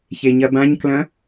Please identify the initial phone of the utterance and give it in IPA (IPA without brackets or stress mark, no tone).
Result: ç